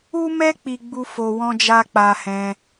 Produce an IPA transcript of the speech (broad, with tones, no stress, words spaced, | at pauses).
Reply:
u˦mɛ˦ k͡pi˦ ɡ͡bu˦fo˧wɔ̃˦d͡ʒa˦ k͡pa˧hɛ̃˧